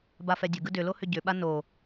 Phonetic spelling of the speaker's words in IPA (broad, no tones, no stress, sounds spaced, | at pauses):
b a f ɛ dʲ ə ɡ ɯ d ʏ l o h ʏ ɟ ʏ ɓ a n o